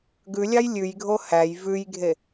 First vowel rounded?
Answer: yes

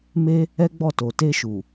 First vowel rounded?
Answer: no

